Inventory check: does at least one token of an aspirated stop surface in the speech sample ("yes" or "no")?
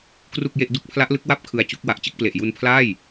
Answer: yes